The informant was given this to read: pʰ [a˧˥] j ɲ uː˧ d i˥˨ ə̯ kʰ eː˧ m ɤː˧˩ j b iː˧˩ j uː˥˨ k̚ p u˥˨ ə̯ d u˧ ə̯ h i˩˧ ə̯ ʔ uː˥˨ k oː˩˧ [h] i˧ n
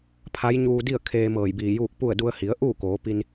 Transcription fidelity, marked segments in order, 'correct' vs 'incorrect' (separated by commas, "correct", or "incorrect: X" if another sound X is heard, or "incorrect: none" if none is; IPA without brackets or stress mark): correct, incorrect: p